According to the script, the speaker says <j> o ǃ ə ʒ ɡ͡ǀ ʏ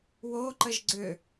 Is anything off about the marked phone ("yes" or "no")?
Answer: yes